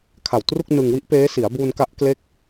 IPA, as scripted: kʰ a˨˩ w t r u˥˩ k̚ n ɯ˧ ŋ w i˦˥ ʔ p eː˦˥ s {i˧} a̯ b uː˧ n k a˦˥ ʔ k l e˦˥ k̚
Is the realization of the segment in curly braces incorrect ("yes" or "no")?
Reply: yes